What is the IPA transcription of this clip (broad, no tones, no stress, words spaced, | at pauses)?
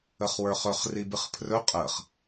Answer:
əχwə˞χɵχ ribɨχpʰrɵ qʼəːχ